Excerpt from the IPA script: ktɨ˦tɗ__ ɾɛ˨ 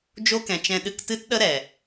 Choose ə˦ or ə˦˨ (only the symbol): ə˦